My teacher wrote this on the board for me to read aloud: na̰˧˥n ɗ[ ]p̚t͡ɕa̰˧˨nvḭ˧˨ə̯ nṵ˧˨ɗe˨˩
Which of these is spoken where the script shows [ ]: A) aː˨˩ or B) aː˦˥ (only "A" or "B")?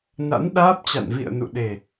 B